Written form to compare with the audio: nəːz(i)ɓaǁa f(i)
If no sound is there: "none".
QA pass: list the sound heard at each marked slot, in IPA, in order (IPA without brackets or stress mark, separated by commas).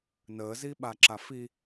i, i